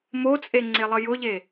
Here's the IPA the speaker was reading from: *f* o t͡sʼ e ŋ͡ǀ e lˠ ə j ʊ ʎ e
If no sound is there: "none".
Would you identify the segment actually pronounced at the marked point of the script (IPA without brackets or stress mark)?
m